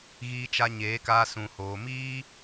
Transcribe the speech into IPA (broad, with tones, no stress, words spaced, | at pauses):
ɣiː˧t͡ʃa˧ ɲeː˨˦kaː˧ sũ˨hoː˨ miː˦